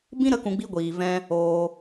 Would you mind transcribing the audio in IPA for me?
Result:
bĩ˦ɾə˧ kũ˧ɡ͡bi˦ ɡʷiː˨vɛ̃˦ | oː˧

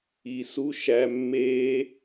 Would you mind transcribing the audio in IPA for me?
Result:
i˨su˦ʃæ˧ mːe˦

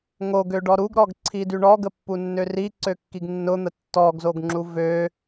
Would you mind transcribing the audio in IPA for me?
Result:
ŋoɡøɖɔ ɾuɡɾɔɡǀʰidy ɳɔɡəpːunːø riǀøkːiɡ nːʊn̪ə tːɔɡzoɡŋ͡ǁu vø

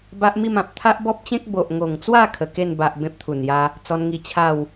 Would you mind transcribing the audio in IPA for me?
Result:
ba˦ʔmi˥˧mã˨p̚ t̪ʰa˦ʔbɔ˦p̚t͡ɕẽ˦k̚ bo˨ʔŋo˨˩ŋt͡swa˥˧ kʰə˨˩ke˥˧n ba˨ʔ bẽ˦p̚t̪ʰu˨˩nja˦ | t͡sɔ˧nŋi˧ t͡ɕʰa˥˧w

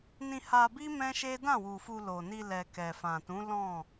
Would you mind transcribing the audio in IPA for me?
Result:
nĩ˧ha˧bi˦ mɛ̃˦ʃe˦ dã˦˨wu˨ fu˧ lo˨ni˧ lɛ˨ kɛ˨fã˨tũ˨˦ lɔ̃˦˨

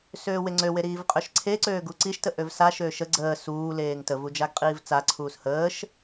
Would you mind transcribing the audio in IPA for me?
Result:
søːweŋ͡ǀøwe ɾiːvqʼøʃǀʰeǀøː ɡuǀiʃtə ʔøvsaʃøːʃ ə ɡ͡ǀəː suː leːŋtəvu d͡ʒaɡqʼiːvt͡saǀʰuːs həːʃ

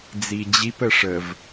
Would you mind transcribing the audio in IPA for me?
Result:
d͡zid͡ʑip əʂəv

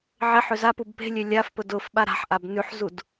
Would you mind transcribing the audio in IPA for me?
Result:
ʕeħø zapub pe̤lʲø lʲafpʊ dʊf ɓaɾa̤ħʔab nʉħzud

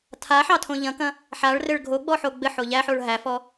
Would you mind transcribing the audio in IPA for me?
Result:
tʰaħɑtʰõ ʎɐ̃kɐ̃ | ħaɭrɘɭ ɡʱoɡ͡bɔħo ɡ͡bɘħo ʎæħoɭ ɦæfɔ

